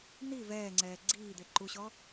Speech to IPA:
n i v ɛː ŋ͡ǀ ɛː ɡ͡ǀ iː d̪ e ǃ u ɕ ɔ

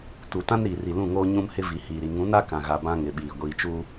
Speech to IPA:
t u˨ t ã˦ n ɾ iː˨ r i˨ l ũ˦˨ ŋ oː˦ ɲ ũ˦ m h ɪ˦ v i˨ h iː˨ ɾ i˨ ŋ ũ˨˦ n a˦ k ã˨ ɣ a˨ b ã˦ ŋ ɪ˨ ɓ iː˨ ɡʷ iː˨ t͡ʃ u˦

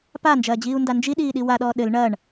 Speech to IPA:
p a n d͡ʒ ɐː d͡ʑ iː u̯ n d a n d͡ʒ i ɗ iː ɗ i w a ɗ ɔː ɗ ɘ l ɳ ɐ ɳ

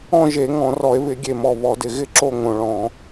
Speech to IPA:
ɔ̃˥˨ ʒ e˧˩˧ ŋ ɔ̃˧˩˧ r ɔ˧˩˧ e̯ β ɪ˧˩˧ ɡʲ e˨˩ m ɔ˨˩ β ɔ˧˩˧ d ɪ˨˩ ɣ ɪ˥˨ ǁ o˥˨ ŋ õ˨˩ ɭ ɔ̃˧˩˧

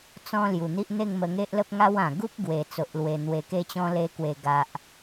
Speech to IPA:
t͡s ɔ̃˦ l j u˨˩ n̪ i˦ ʔ n̪ e˥˧ ŋ m ə˧ ŋ e˦ ʔ l ə˦ p̚ ŋ a˦ w ã˨˩ ɡ u˦ p̚ ɡ w e˨˩ t͡s o˨ ʔ l w e˨˩ n̪ w e˨˩ k e˧ t͡ɕ ɔ̃˧ l e˧ k w e˨˩ ɡ a˨ ʔ

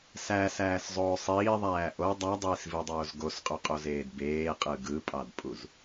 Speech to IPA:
s æ s æː s zˤ oː sˤ iː ðˤ æː ʔ o dˤ ɑ dˤ iː s v i dˤ oː z ɡ o s qʼ y qʼ o z eː d b eː qʼ ɯ ɡ ɯ pʼ ɑ d pʼ u z

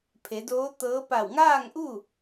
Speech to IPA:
pʰ e˩˧ d oː˧˥ t̪ ɤː˧˥ p a˧˩ w ŋ aː˥˨ ŋ ʔ u˥˨

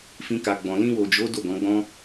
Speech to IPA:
f ĩ˦ k a˧ ɡ͡b ɔ̃˧ l ĩ˧ w o˨ d͡ʒ o˨˦ d o˦˨ ɡ ɔ̃˨˦ ɡ͡b ɔ̃˦

